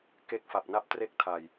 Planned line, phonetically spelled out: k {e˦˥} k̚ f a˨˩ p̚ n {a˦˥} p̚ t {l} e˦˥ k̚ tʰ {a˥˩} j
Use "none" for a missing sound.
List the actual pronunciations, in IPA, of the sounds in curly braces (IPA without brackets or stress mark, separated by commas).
e˦˥, a˦˥, r, a˨˩